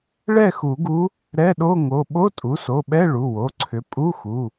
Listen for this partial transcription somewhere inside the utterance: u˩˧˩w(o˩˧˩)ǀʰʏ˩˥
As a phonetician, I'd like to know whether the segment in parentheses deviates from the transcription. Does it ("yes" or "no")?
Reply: no